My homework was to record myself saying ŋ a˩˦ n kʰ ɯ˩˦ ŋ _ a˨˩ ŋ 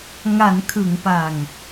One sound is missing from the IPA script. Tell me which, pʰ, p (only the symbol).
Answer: p